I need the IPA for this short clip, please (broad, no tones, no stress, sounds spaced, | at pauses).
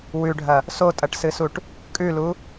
w ʉ ɖʱ ɐ | s o tʼ ɐ ʈ s ɨ s u ʈ | kʼ ʉ l u